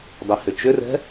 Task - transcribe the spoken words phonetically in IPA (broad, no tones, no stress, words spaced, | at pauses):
dˤɛhʏt͡ʃʏrɛ̤